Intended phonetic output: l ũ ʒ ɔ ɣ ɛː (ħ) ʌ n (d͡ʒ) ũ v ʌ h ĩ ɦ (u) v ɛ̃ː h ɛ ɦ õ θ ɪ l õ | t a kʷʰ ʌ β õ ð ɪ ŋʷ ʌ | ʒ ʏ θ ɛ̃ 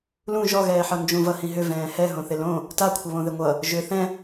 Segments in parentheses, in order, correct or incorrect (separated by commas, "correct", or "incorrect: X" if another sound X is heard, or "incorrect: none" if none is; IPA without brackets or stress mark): correct, correct, incorrect: ʏ